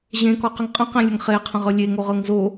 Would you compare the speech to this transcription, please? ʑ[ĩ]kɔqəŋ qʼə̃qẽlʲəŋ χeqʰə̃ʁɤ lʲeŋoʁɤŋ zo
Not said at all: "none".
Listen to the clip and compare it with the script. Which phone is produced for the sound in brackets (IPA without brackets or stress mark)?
ẽ